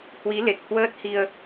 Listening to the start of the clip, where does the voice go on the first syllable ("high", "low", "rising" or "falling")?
rising